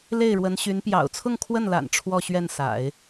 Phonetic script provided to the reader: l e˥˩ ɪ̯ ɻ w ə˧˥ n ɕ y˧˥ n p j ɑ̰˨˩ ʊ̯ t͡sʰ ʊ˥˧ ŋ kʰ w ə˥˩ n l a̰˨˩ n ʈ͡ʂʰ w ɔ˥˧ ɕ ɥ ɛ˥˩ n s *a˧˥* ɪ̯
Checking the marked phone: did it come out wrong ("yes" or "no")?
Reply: yes